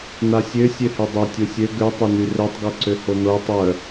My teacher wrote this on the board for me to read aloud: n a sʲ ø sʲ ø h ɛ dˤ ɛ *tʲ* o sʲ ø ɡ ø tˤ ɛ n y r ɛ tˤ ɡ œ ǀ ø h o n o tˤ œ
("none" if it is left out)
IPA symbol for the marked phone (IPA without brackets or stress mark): tʲ